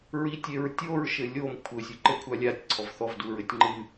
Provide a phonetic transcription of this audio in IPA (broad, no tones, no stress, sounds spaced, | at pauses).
ɹ i tʲ e ɹ tʲ o ɹ ʃ ɘ lʲ o m kʷʰ ɘ sʲ u ǃ ɘ kʷʰ a lʲ a tʲ ǀʰ ɔ v θ ɔ v d u ɹ ɘ tʲ ŋ͡ǃ ɨ